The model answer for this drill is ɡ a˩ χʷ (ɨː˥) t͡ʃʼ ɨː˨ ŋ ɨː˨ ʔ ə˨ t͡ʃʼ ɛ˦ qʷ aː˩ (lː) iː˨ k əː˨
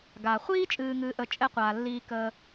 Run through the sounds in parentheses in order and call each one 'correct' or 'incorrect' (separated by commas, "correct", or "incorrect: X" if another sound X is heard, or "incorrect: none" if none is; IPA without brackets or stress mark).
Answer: incorrect: iː˥, correct